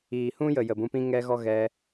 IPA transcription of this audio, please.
iː˨hũ˦jə˨ jə˨bũ˧pĩ˦ ŋɛ˦ɣɔ˦ ɣɛ˧

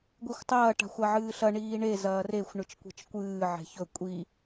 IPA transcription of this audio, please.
ɡʷexʷtˤɐː ʈa̤xʷaʕɨːɬɐ ɳiːɳe zɐːrexʷ ɳɨt͡ʃkʷe̤t͡ʃkʷɨː ʕe̤çɵ kʷʼi

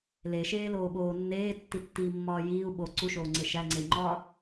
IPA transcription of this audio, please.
leʃeːloːɓoː nːeːtːitːiːmːɒː jiːu̯ ɓo ǀuʃoːŋ͡ǀe ʃæŋ͡ǀei̯ŋ͡ǃɒː

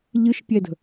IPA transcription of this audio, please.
ʎɨʃpʲɛdə̤

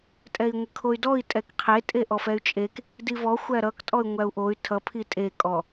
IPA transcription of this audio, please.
tʼɛi̯ŋʷɘkʰoy̯dɔi̯ tʼɛkqʰe tʼeʔɔfɛy̯t͡ʃʼek | divɔ xʷæɾʌk tʼɔy̯ŋʷæu̯ʔoy̯ tʰʌ pʰitʼe kʼɔ

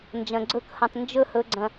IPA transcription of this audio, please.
nd͡ʒɐ̃˨ɡ͡ǀɵ˧khɐ̃˨tˤ nd͡ʒɵ˦˨ hɵ˨ɡ͡ǀɐ̃˨

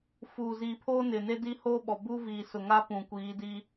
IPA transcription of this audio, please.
fuː˨ziː˨pʰoː˦nɪ˨ ne˦di˦hoː˦ɓɔ˨ buː˦viː˨sʊ˨ŋa˦ pũ˨kʷiː˨˦di˦

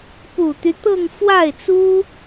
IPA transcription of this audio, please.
pu˨˩t̪y˦ t̪ɤ˥˧ŋ fwa˥˩ɪ̯t͡su˥

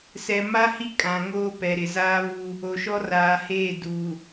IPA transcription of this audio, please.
sɛ˨ ma˦ hi˦ kʼã˨ŋoː˦ pɛ˨ɾɪ˨ zaː˦βu˦ | o˨ʃɔ˦raː˨heː˦˨ du˨

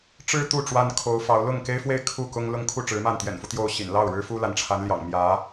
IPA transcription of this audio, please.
ʈ͡ʂɻ̩˥ t̪u˥˩ ʈ͡ʂwa˥nkʰo˧˥ʊ̯fɑ˧˥ʊ̯ lʊ˥˩ŋke˥ɪ̯fwe˥˧ɪ̯ kʰu˥˩ kʊ˥ŋ lʊ˥˧ŋkʰu˥˩ʈ͡ʂɻ̩˧˥ma˥˩n t̪jɛ̰˨˩nfu˦ t̪jo˥˩ʊ̯ ɕḭ˨˩nlɑ˥˩ʊ̯ ɻɻ̩˥fu˥la˧˥nʈ͡ʂʰa˧˥n ljɑ̰˨˩ŋmjä˧˥

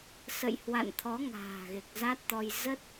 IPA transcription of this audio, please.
sə̰˧˨jhwa̰˧˨nt̪ʰɔ˨˦ ŋa̤ː˨˩ɣe˨˩k̚za˦˥t̚t̪ɔ˧j zə˦˥t̚

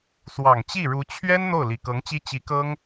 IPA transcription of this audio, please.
swɑ˨˩ŋt͡ɕi˥˩ɻu˧˥ t͡ɕʰɥɛ˥n n̪o˥˩ʊ̯li˨˩kɤ˧˥ŋt͡ɕi˥ t͡ɕi˧˥kɤ˥ŋ

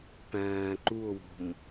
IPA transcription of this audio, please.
pæ̃ː ǃuo̯wo̤m

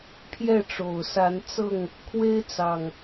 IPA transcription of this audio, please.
pʰjɛ˥˨ʈ͡ʂo˨˩ʊ̯sa˨˦nt͡sɤ˥˨ŋ | kʰwe˦ɪ̯t͡sɑ˨˩ŋ

